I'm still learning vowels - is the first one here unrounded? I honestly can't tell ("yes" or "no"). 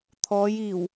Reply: no